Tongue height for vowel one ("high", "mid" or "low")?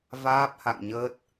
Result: low